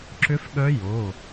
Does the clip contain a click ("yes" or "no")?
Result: yes